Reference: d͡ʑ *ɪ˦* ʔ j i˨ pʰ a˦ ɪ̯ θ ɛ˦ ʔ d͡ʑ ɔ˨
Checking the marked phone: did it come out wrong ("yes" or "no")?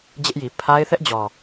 no